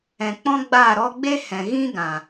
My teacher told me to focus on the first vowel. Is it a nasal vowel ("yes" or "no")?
yes